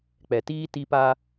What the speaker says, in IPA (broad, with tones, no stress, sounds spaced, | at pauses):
k͡p ɛ˨ t iː˦ t i˦ p a˦